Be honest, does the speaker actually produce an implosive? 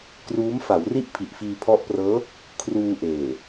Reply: no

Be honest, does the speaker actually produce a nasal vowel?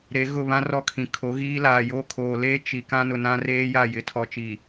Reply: yes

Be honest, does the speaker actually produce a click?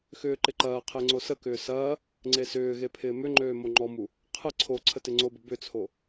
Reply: yes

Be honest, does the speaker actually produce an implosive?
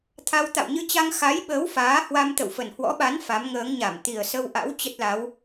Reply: yes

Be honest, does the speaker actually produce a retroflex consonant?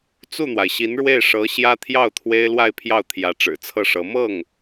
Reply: yes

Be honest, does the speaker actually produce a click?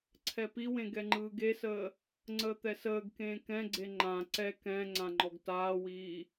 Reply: yes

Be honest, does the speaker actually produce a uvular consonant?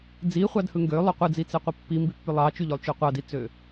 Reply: yes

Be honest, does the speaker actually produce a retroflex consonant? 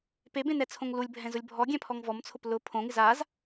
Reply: no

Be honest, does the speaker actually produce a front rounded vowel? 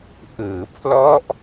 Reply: no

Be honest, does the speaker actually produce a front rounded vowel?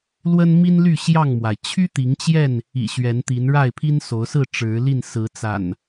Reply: yes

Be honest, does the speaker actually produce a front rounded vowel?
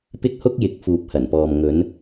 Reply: no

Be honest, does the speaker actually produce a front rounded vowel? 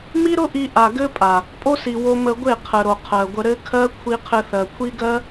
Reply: no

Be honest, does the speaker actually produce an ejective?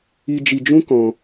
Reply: no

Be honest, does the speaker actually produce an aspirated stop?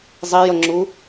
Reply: no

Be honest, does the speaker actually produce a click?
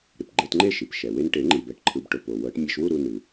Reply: yes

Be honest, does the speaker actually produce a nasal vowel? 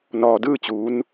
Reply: no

